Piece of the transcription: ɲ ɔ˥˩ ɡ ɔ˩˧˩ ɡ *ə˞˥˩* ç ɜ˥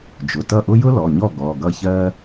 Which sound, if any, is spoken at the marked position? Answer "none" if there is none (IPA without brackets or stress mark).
ʌ˥˩